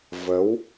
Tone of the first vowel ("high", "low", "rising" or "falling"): rising